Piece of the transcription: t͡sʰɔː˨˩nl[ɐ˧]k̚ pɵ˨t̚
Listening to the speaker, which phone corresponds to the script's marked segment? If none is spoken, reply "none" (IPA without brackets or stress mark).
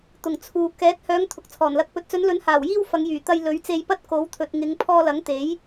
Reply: ɐ˧